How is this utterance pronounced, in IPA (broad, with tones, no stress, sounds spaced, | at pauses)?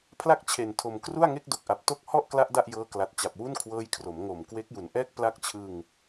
pʰ l a˥˩ k̚ t͡ɕʰ e˨˩ n tʰ o˨˩ m k r u˥˩ a̯ ŋ e˥˩ k̚ d o˨˩ k̚ ʔ a˨˩ p̚ t o˥˩ k̚ h ɔ˥˩ ʔ k l a˦˥ ʔ d a˥˩ ʔ j ɤː˦˥ k l a˨˩ t̚ t͡ɕ a˨˩ p̚ w u˥˩ n kʰ w ɤː˦˥ j kʰ r o˩˦ m ŋ o˨˩ m k w e˦˥ k̚ j u˨˩ n ʔ ɛː˥˩ k̚ p l a˦˥ k̚ t͡ɕʰ ɯ˧ ŋ